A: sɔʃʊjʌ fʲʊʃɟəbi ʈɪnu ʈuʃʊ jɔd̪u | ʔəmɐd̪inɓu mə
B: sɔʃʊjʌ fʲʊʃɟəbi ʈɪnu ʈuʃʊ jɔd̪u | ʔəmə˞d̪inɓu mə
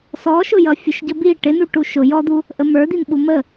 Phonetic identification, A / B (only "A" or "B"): B